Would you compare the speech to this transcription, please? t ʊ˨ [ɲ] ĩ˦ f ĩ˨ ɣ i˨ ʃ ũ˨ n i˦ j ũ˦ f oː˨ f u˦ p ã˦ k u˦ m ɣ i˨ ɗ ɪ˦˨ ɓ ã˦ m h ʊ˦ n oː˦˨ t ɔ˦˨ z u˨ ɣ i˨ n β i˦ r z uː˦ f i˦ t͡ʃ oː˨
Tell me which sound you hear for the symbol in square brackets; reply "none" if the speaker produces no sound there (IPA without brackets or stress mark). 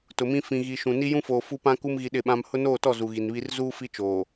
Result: m